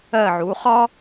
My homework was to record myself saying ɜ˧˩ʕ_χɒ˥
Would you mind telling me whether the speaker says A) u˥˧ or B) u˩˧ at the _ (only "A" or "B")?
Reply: B